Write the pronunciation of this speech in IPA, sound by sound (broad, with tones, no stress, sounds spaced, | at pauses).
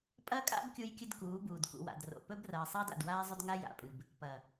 pʼ ɐ˦ kʼ a̰˦ b kʲ u˦ j kʲ ɨ˦ d k uː˨˦ b uː˨ d k ṵ˨ w a̰˨ d r o̰˨ p ɵ˦ b r ɐː˨ sˤ ɐː˦ d a̰˨ d w aː˦ zˤ ɵ˦ d ŋ a˦ j a̰˨ pʼ ɨ˨ b | p ɐ˨